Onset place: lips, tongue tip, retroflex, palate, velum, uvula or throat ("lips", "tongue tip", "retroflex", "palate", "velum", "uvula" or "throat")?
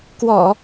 velum